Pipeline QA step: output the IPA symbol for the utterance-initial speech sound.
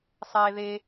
sˤ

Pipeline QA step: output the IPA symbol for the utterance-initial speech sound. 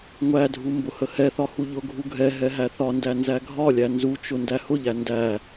ŋʷ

